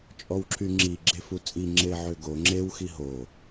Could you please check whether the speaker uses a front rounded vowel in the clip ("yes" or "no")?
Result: yes